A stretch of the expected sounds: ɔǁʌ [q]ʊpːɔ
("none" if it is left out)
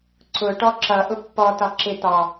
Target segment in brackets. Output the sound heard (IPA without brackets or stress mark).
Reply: ʔ